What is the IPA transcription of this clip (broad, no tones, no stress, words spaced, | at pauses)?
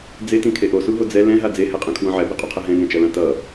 d͡zetĩkʰe ʔosuɦo d͡zɛ lɛ̃ɦa d͡zehɛqʼẽkʰwõ ʕɛbiqʼuqʰɛ ɦɛ̃ŋɛ̃t͡ʃʌlã tʌ